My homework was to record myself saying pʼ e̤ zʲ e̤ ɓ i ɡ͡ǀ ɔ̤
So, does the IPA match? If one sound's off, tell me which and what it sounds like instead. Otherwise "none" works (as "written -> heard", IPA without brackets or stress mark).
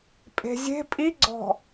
ɓ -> pʼ